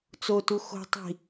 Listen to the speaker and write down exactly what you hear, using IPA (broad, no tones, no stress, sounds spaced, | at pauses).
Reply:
t͡s o t u x o̤ tˤ i̤